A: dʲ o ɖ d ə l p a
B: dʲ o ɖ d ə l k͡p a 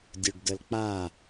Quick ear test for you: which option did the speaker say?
B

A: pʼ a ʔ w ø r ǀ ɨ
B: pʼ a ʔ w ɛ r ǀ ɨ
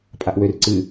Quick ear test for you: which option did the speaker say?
A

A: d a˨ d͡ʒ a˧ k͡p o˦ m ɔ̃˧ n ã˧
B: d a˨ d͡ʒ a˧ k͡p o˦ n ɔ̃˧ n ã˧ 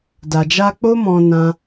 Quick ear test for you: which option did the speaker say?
A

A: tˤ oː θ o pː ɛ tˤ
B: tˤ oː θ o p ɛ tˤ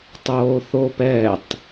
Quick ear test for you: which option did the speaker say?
B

